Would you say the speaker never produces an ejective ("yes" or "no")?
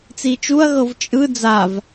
no